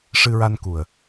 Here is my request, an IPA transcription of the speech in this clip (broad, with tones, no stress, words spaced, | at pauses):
ʂɨ˧ɹa˧nku˨˩ə̯